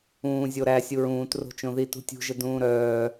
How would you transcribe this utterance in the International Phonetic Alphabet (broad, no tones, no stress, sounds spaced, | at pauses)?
ũː zʲ o ɾ æ sʲ u ɹ ũː t r o̤ t͡ʃ õ ð i t ṳ tʲ ṳ ʒ ə d ũː ɾ œː